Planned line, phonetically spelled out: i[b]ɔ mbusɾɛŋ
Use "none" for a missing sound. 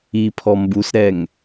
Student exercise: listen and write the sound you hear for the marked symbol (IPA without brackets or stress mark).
pʰ